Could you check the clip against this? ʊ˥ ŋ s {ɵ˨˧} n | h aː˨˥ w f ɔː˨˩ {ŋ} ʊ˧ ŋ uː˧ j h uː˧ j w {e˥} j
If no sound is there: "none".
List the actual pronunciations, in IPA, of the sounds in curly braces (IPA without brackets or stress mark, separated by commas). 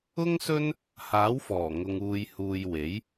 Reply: ɵ˥, ŋ, e˨˥